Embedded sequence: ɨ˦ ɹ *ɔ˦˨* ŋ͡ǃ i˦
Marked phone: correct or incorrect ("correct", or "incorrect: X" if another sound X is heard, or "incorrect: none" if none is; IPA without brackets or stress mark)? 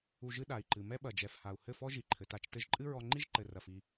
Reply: incorrect: ɔ˧